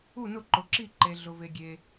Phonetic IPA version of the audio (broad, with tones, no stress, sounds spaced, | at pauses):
u˥˩ n ʊ˥˩ ǃ ʊ˨ ǁ i˥˩ ǃ e˨ ɮ ʊ˨ v e˨ ɡʲ e˨